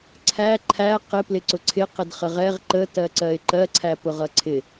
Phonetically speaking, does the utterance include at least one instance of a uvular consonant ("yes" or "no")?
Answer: yes